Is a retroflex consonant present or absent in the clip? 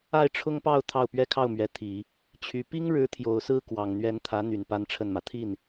present